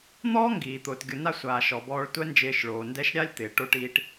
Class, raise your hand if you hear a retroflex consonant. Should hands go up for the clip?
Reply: yes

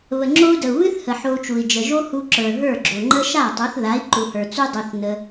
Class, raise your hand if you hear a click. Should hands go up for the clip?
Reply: yes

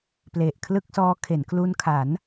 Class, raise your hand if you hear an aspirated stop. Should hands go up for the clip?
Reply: yes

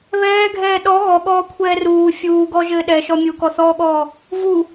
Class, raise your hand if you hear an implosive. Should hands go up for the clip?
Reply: yes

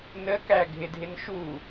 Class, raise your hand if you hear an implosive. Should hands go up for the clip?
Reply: no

